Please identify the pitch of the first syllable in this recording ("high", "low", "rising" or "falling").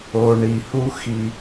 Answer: low